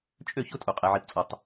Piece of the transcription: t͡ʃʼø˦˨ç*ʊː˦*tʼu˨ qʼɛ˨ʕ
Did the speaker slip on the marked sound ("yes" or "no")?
yes